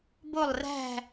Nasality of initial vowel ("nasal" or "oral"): oral